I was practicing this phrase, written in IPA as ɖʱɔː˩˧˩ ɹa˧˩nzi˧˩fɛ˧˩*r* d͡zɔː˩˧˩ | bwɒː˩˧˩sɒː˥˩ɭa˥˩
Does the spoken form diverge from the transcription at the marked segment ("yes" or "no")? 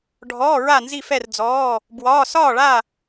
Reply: no